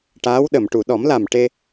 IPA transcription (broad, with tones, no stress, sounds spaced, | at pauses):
ʈ aː˧˥ w ɗ ə˨˩˨ m ʈ u˨˩˨ ɗ ɔ˨˩˦ m l a˨˩ m ʈ e˧